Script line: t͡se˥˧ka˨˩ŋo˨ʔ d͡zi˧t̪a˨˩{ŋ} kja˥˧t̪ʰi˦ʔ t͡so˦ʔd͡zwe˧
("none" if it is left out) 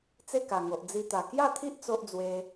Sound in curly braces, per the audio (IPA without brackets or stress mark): none